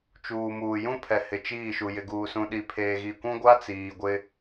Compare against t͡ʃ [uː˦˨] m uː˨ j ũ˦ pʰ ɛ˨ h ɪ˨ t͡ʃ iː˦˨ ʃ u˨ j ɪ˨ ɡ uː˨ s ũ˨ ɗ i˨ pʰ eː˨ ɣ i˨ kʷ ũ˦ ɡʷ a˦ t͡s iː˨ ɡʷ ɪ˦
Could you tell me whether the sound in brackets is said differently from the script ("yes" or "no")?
yes